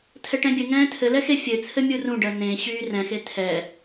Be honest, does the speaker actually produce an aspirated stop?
yes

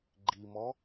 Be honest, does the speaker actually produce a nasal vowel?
no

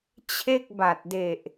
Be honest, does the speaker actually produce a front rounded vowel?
no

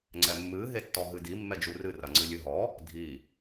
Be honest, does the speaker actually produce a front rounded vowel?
no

